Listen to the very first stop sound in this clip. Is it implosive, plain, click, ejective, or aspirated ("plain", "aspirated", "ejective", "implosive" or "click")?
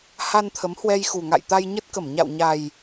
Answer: aspirated